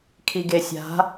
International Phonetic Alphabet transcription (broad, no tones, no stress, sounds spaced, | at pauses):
kʰ i ɡ e sʲ a̤